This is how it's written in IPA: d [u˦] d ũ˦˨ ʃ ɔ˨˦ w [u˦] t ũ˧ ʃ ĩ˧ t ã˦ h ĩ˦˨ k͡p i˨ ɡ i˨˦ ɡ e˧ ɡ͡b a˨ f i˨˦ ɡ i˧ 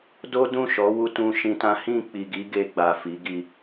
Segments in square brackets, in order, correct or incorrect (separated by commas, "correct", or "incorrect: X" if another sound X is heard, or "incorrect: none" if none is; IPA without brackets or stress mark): incorrect: o˦, correct